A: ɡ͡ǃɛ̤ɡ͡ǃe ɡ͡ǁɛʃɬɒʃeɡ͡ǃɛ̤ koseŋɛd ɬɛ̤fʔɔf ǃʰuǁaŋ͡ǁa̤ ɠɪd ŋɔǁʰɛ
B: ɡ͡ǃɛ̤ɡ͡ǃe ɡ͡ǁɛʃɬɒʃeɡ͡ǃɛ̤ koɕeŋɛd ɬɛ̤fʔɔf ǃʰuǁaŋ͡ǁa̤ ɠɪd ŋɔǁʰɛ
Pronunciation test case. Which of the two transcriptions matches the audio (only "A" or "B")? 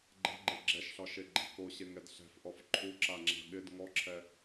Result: B